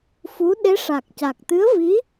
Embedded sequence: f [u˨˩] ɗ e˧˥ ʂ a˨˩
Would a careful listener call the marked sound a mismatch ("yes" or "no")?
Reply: yes